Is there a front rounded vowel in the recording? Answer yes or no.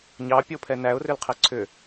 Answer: yes